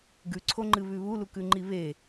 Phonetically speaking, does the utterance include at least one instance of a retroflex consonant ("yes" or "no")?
no